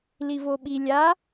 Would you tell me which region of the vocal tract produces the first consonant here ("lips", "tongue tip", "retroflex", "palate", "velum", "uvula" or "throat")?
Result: tongue tip